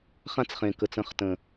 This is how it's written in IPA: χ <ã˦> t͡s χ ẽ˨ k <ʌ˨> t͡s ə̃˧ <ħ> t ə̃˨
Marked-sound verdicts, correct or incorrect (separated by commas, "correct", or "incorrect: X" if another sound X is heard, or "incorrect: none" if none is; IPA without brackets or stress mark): correct, incorrect: ə˨, incorrect: χ